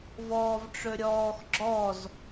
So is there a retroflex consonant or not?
yes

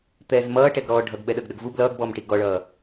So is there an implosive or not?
yes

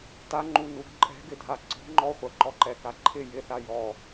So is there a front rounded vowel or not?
no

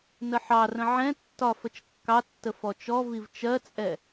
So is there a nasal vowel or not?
yes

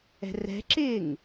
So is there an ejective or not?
no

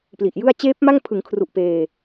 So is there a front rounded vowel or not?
no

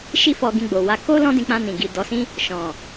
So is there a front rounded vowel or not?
no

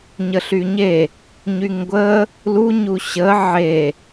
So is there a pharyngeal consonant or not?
yes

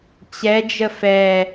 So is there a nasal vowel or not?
no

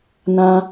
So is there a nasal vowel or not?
yes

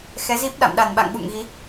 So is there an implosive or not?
yes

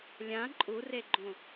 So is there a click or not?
yes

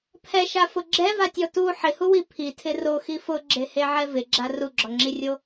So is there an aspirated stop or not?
yes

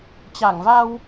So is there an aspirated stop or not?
no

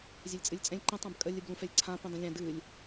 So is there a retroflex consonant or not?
no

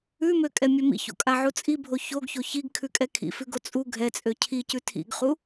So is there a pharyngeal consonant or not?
yes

